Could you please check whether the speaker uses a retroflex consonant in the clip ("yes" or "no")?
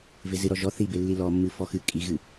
no